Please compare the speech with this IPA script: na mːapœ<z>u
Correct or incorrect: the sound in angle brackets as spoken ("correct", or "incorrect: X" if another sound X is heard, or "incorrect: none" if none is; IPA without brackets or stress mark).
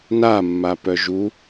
incorrect: ʒ